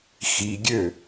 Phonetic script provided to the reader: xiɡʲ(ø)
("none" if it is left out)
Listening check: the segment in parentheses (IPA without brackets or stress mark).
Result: ø